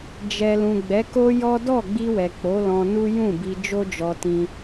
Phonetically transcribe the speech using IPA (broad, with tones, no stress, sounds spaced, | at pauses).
d͡ʒ ɛ˨ l ũ˨ ɡ͡b ɛ˨˦ k o˦ j ɔ˦ d ɔ˦˨ ɡ͡b i˧ w ɛ˨ k͡p o˨˦ l ɔ̃˧ n u˦ j ũ˦˨ b i˧ d͡ʒ o˦ d͡ʒ ɔ˧ t ĩ˧